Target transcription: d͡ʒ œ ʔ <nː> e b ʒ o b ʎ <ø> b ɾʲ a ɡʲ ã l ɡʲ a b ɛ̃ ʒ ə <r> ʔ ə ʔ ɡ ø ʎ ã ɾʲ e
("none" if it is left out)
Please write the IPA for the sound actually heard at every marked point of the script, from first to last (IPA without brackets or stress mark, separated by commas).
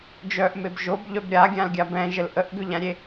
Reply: m, œ, l